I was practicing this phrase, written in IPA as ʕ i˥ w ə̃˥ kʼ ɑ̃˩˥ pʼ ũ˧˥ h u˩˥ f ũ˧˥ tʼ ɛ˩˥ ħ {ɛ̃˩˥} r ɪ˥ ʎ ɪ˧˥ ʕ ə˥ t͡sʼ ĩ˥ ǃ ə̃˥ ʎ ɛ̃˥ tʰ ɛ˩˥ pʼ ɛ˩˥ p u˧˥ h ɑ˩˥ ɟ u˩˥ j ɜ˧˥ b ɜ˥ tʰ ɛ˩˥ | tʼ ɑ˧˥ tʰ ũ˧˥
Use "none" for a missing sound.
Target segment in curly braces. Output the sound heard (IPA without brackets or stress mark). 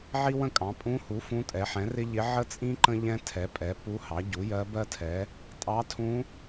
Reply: ɛ̃˩˥